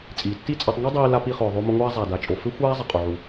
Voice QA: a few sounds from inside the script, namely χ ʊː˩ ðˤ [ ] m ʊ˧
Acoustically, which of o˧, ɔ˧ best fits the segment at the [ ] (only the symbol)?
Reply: o˧